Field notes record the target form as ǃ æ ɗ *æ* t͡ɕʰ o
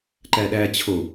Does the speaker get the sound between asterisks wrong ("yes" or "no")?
no